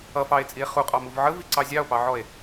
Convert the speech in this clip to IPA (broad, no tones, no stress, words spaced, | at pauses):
ʌfɑe̯t͡sʼie̯ χuqʼɑmuv ʕəviǀɑ zʲɑo̯pɑʕɔe̯